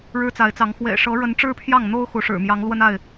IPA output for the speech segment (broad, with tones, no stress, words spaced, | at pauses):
ɻɻ̩˦t͡sa˨˦ɪ̯t͡sɑ˨˦ŋ xwḛ˨˩ɪ̯ʂɤ˨˦ɻə˨˦n ʈ͡ʂɻ̩˦pʰjɑ˥˨ŋn̪o˦ʊ̯ xu˨˦ʂɻ̩˨˩ mjɑ˨˦ŋlwə˦na˥˨ɪ̯